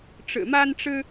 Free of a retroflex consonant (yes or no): no